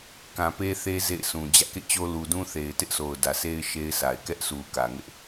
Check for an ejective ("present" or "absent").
absent